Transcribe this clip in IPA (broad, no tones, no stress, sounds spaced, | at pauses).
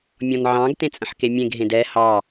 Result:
mʲ ɔ̃ n ʕ ɑ̃ ɡ t ẽ t͡sʼ ə̃ ħ k e mʲ ẽ ɡ ɦ ẽ d ɛ h ɑ